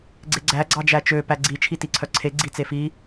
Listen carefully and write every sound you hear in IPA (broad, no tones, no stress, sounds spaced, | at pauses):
ɡ͡ǀ e ɡ͡ǀ æ ɡ͡ǀ ɑ d͡ʒ æ t͡ʃ ø p æ ɡ͡ǀ i t͡ʃʰ i t i ǀʰ œ ǀʰ e ɡ͡ǀ i t͡s e f i